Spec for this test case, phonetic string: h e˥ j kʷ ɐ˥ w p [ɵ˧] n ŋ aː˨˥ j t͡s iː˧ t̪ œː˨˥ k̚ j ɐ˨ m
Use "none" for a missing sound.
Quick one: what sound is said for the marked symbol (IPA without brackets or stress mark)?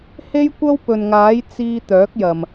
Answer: ɵ˨